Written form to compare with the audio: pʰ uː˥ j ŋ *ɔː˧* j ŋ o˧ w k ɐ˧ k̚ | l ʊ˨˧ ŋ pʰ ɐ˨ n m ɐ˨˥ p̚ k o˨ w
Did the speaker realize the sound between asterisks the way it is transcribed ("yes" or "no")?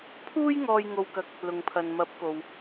yes